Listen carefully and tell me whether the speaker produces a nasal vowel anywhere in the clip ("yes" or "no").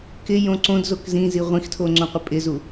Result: yes